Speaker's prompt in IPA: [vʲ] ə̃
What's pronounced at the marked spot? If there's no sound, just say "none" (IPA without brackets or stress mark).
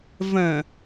v